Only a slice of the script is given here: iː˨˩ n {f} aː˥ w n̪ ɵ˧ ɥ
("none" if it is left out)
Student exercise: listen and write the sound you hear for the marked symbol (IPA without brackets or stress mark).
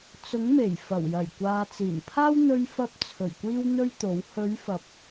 pʰ